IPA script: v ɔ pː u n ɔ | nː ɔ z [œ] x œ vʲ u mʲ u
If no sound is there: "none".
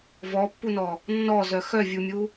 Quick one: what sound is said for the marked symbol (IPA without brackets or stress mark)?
œ